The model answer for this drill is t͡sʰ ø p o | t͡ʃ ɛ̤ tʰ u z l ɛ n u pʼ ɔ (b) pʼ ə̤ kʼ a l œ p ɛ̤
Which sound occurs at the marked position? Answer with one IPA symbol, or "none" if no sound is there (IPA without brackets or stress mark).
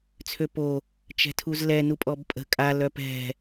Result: b